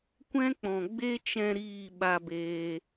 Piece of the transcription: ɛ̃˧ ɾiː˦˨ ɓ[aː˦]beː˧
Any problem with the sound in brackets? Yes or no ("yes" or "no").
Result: yes